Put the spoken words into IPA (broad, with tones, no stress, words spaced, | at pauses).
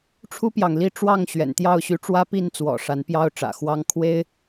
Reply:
ʈ͡ʂʰu˦pjɑ˨ŋli˥˨ ʈ͡ʂwɑ˥˨ŋ ɕɥɛ̰˨˩nt̪jɑ˥˨ʊ̯ɕy˨˦ ʈ͡ʂwä˦pi˥˨nt͡swɔ̰˨˩ ʂa˨˦npjɑ˦ʊ̯ʈ͡ʂä̰˨˩xwɑ˦ŋ kʰwe˦ɪ̯